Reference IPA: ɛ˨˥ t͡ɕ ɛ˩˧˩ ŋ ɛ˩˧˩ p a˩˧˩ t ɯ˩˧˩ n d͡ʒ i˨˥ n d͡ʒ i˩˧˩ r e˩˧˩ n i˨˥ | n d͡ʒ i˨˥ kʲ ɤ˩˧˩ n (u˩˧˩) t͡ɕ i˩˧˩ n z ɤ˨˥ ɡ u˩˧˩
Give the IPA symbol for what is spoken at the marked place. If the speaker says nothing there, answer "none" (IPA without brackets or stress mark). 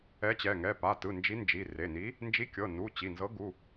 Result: u˩˧˩